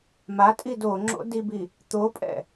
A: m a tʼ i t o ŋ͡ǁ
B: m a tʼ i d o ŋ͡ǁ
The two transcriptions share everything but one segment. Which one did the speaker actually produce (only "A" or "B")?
B